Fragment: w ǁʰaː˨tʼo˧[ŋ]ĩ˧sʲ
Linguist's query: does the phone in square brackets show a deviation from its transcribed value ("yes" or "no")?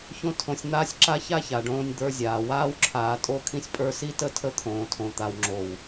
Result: yes